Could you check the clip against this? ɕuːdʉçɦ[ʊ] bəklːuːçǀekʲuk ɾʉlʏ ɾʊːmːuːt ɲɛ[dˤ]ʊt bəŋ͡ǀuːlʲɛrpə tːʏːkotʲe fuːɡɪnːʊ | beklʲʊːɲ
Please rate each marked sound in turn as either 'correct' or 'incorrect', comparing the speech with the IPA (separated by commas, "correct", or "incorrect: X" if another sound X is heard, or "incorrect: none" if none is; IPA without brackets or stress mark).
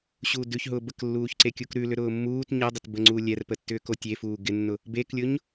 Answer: incorrect: ʊː, correct